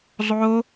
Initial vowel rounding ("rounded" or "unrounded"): rounded